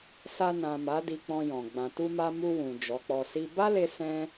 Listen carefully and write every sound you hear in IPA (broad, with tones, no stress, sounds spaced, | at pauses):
s a˧ n ã˨ m a˨˦ d i˧ k͡p ɔ̃˧ j ɔ̃˨ ɡ͡b ã˨ t u˧ m a˧ m u˧ w ũ˨ d͡ʒ ɔ˨˦ k͡p ɔ˧ s i˦ b a˦ l e˧ s ɛ̃˦